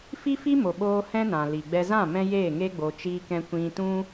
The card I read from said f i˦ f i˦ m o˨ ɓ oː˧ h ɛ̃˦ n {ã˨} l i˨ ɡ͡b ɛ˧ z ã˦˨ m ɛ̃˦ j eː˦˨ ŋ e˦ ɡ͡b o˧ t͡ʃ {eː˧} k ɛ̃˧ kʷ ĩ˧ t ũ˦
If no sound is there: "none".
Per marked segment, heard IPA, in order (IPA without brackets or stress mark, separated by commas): ã˨, iː˧